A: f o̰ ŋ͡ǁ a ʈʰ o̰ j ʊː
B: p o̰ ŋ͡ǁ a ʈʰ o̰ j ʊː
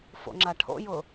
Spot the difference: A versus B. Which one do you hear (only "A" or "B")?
A